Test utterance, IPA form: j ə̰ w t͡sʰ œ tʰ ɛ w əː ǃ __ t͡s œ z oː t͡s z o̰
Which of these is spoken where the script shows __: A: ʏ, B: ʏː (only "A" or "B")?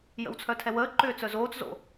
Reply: B